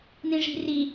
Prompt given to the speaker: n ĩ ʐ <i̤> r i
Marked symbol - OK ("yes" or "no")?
yes